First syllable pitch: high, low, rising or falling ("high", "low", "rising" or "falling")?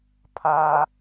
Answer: low